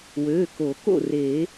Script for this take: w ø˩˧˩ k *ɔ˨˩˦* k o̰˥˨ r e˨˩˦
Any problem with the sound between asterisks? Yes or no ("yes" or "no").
yes